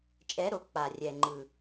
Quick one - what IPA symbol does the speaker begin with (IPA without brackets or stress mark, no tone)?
t͡ʃʼ